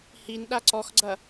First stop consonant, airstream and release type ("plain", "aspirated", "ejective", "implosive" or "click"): implosive